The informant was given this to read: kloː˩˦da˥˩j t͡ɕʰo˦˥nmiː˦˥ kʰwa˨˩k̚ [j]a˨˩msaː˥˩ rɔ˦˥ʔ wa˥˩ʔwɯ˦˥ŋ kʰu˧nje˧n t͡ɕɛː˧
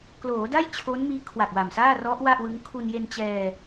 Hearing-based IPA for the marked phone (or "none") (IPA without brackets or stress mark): w